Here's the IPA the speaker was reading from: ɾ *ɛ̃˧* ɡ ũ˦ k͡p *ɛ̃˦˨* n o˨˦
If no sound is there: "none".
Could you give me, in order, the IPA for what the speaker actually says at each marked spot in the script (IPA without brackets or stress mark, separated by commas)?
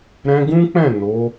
ɛ̃˧, ɛ̃˦˨